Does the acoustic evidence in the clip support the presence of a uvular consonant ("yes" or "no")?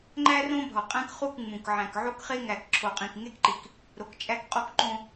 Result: yes